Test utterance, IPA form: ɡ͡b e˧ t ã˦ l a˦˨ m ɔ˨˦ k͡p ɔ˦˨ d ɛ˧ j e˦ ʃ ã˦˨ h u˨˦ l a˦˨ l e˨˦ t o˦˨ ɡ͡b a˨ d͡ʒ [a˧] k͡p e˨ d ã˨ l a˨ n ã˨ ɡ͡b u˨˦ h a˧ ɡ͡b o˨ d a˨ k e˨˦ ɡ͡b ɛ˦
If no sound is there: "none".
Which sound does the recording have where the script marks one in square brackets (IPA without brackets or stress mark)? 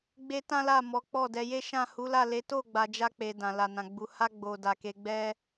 a˧